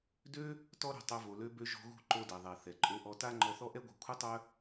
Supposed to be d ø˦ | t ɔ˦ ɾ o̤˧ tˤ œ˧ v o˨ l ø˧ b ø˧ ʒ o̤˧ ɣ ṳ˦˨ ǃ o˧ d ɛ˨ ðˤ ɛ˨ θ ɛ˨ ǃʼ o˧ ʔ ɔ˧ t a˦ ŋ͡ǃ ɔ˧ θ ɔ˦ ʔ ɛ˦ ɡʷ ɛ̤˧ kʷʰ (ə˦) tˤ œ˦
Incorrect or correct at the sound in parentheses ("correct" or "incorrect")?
correct